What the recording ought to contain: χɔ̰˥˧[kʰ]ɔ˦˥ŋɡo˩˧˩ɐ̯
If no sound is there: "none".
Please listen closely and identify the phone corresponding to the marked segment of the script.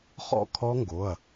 kʰ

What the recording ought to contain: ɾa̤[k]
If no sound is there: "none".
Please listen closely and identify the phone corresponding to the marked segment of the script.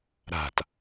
t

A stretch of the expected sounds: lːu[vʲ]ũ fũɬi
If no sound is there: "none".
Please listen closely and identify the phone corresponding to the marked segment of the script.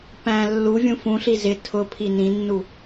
vʲ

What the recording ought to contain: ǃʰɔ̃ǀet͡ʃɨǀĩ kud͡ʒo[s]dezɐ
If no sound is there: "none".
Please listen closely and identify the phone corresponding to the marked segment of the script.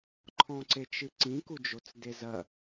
t͡s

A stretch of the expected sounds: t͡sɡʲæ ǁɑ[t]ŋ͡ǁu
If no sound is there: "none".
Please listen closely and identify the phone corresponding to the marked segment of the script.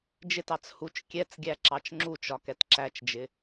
t͡ʃ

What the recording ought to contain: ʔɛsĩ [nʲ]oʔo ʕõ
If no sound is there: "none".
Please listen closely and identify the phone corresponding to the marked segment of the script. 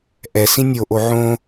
nʲ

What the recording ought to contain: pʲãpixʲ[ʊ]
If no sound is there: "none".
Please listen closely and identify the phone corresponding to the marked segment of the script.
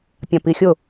ʊ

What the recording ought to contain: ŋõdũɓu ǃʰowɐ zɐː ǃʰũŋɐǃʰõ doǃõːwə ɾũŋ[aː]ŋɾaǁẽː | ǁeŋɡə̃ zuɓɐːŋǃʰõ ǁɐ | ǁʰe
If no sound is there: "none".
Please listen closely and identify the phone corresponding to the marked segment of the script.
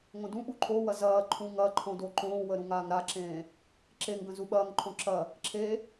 aː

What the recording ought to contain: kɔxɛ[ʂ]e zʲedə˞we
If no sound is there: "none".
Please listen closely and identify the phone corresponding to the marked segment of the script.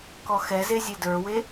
z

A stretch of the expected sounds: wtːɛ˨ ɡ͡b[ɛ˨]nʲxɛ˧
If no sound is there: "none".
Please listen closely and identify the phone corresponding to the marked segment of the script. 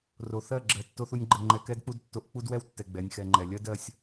ɛ˨˦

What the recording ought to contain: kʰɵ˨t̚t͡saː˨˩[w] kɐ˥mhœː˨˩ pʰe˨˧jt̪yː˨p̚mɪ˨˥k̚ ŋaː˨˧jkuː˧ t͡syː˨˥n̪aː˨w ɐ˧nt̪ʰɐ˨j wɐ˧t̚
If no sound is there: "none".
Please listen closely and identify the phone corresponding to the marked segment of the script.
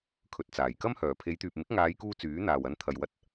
j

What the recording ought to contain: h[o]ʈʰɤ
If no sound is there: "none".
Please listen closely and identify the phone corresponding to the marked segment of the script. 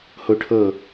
o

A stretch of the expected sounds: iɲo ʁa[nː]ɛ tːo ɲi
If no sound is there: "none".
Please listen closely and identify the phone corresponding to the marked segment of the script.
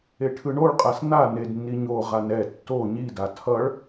n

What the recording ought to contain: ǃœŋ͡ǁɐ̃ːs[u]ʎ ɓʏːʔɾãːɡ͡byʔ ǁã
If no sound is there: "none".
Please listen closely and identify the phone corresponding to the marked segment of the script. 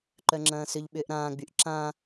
ʏ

